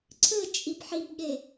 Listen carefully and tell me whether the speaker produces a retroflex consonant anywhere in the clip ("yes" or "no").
no